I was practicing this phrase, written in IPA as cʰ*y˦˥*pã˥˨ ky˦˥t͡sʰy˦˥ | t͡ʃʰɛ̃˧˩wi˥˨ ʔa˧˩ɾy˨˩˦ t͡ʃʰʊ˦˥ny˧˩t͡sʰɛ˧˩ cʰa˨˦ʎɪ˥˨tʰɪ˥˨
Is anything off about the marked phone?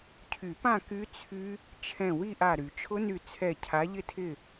yes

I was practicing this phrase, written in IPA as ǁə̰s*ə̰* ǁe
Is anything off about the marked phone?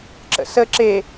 yes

